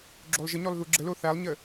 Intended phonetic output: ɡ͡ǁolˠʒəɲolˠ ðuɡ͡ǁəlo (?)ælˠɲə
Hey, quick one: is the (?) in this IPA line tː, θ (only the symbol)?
θ